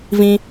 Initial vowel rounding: unrounded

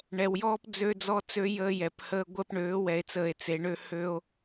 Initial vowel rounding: unrounded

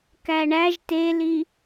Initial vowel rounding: unrounded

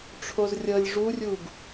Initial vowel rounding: rounded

